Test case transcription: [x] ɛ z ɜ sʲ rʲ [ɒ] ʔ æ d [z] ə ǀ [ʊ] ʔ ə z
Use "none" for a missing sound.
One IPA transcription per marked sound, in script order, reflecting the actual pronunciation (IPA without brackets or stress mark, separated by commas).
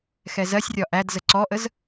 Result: x, ɒ, z, ɔ